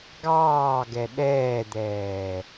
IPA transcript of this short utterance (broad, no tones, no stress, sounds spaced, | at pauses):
ɡ ɑː ɡ ɛ ɗ ɛː d̪ ɛː